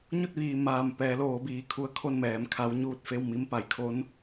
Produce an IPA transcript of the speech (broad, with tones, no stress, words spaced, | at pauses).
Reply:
ɲu˥˨t̚ʋiː˩ maː˧˩m pɛː˩˧loː˩˧biː˩˧ kʰu˧ə̯kʰo˥˨nmɛː˩˧m kʰa˧˥wɲuː˥˨t̚ fe˥˨wmi˧˥m pa˩˧jkʰo˧˥n